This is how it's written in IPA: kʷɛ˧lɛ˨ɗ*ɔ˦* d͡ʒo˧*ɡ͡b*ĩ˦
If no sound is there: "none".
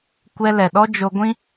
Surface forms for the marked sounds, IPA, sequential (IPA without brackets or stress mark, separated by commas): ɔ˦, ɡʷ